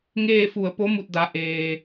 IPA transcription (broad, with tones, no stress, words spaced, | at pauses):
ŋeː˥˨fu˧˩ə̯ po˧˥mu˧˩t̚da˩˧ ʔeː˩